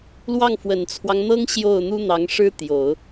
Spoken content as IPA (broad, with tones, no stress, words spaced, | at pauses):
lwɑ˥˩ŋfwə˨˩nt͡sʰwɑ˦ŋn̪ɤ˥ŋ ɕjo˥˩ʊ̯n̪u˥n̪ɑ˧˥ŋ ʂɻ̩˥t̪jo˨˩˦ʊ̯